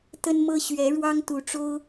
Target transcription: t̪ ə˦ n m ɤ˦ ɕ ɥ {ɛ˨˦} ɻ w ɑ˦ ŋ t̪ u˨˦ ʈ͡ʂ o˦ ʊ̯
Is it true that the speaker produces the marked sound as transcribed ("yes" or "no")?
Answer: yes